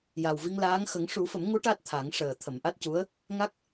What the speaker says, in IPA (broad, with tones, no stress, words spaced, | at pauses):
ja˨˩wvi˧ŋlaː˧˥ŋ xə˨˩˦ŋʂu˨˩˦fə˨˩˦mŋu˧˥ ʈa˦˥t̚t̪ʰa˨˩˦ŋ ʂəː˨˩t̪ʰə˨˩˨mʔa˦˥t̚cu˧˥ə̯ | ŋa˦˥k̚